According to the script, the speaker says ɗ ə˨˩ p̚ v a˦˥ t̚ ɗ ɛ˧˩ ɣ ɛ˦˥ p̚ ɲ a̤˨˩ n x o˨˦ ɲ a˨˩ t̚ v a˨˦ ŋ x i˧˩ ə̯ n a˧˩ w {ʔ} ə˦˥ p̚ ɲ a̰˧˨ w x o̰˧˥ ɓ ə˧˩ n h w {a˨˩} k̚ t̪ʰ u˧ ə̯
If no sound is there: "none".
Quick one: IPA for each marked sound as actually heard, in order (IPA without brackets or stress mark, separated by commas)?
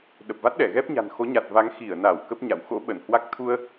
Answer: k, a˦˥